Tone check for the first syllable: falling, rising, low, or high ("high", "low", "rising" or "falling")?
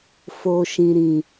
low